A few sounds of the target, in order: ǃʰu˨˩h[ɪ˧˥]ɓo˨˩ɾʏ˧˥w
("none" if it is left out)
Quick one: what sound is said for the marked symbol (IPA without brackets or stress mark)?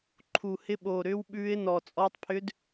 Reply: ɪ˧˥